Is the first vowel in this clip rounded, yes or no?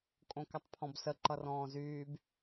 yes